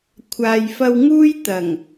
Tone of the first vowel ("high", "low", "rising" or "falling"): low